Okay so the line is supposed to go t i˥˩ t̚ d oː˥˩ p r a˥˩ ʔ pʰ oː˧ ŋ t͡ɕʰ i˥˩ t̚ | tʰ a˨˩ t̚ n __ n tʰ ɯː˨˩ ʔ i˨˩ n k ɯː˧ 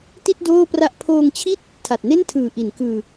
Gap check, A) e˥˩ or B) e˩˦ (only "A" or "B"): A